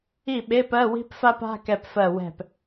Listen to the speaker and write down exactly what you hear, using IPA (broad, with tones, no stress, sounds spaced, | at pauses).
i˥˩ ɓ e˧˥˧ p ɜ˧˥˧ w i̤˥ p f a˥ p a̤˧˥˧ k ɛ˧˩ p f ɜ˧˩ w ɛ̤˧˩ p